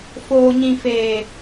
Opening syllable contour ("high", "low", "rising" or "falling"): low